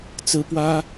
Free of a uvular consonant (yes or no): yes